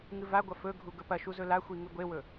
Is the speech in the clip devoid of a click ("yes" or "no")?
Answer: yes